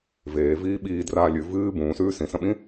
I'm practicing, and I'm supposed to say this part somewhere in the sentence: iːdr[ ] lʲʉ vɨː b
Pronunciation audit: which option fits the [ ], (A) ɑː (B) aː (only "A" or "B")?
B